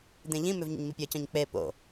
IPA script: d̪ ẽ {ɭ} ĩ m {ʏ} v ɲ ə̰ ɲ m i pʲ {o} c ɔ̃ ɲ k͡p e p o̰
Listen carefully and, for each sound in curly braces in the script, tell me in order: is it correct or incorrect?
incorrect, correct, incorrect

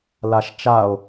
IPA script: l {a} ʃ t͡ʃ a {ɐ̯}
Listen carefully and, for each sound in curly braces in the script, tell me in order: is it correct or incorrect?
correct, incorrect

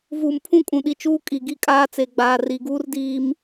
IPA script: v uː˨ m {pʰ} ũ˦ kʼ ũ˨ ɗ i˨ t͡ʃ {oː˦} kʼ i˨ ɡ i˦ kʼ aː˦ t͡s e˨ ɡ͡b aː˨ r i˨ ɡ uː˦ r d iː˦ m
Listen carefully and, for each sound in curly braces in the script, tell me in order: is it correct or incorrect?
correct, incorrect

